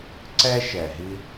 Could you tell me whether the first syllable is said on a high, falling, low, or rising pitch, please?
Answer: high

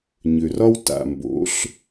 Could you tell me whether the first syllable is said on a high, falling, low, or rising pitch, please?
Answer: low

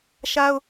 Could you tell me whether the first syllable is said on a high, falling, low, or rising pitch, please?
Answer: high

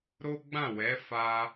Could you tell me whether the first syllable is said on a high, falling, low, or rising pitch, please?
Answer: high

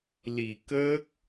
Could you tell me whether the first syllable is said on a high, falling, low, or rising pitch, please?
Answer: low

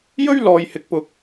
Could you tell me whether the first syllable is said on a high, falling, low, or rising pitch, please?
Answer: high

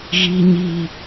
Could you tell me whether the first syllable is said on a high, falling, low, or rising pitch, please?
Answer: low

